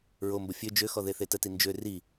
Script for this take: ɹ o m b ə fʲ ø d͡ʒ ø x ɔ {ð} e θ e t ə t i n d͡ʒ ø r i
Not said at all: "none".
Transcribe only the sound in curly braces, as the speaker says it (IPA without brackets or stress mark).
ð